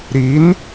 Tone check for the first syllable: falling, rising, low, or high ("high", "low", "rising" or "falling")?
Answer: rising